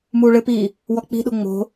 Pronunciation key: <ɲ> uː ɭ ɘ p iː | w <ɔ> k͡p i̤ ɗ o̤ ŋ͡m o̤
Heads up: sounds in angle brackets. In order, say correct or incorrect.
incorrect, correct

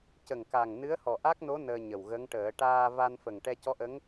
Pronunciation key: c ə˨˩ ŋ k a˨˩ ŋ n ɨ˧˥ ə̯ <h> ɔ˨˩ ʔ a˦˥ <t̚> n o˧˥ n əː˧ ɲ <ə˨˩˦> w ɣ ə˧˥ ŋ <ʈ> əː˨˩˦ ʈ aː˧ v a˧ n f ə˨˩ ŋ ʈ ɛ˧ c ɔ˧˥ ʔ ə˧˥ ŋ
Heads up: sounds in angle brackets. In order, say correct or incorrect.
correct, incorrect, incorrect, correct

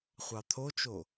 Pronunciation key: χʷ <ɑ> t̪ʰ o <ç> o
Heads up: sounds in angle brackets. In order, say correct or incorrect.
correct, incorrect

